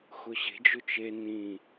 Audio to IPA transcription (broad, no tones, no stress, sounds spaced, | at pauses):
x ʊ ɕ e̤ d͡ʒ ʊ t͡ʃ e n ĩ